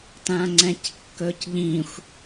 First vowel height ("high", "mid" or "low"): low